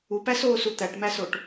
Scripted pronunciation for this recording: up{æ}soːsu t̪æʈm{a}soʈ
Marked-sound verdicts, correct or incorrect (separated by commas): correct, incorrect